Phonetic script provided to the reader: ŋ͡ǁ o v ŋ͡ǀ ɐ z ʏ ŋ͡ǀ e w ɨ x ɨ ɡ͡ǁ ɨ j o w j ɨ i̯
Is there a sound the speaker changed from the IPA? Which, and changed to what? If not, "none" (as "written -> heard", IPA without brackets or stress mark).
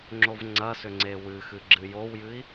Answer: z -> s